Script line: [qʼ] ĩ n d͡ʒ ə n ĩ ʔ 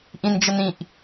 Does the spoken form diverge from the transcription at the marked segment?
yes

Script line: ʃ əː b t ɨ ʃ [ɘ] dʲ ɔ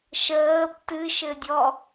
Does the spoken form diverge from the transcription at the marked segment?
no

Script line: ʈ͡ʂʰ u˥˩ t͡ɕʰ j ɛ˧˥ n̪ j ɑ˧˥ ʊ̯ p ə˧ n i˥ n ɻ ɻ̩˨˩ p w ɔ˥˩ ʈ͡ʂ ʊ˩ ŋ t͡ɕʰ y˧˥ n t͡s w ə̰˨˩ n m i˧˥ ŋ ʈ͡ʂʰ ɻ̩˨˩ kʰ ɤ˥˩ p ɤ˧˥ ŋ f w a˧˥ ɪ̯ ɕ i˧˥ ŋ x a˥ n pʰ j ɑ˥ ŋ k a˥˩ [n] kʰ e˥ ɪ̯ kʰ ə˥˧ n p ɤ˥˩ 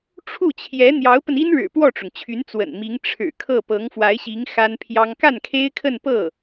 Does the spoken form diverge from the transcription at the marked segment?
no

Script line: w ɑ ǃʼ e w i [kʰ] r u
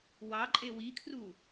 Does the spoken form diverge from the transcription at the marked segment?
no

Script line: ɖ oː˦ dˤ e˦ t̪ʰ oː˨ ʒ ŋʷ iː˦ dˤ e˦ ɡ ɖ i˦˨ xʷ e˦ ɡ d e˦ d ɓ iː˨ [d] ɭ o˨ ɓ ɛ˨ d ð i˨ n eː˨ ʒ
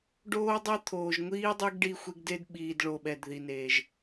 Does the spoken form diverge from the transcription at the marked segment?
no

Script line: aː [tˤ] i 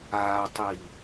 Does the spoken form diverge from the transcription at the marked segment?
no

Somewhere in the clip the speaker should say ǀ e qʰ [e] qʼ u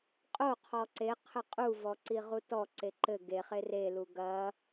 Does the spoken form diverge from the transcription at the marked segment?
yes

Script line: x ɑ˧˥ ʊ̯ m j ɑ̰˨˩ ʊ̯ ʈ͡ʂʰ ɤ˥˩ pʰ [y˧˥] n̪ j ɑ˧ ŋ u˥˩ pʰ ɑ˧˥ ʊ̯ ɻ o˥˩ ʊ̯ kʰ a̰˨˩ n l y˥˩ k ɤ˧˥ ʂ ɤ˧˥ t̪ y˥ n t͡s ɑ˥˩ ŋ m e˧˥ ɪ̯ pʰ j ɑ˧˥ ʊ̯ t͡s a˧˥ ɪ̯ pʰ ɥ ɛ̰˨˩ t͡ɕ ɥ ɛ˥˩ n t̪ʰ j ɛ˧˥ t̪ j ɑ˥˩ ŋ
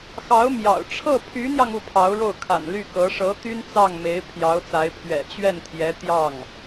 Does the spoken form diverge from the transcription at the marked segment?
no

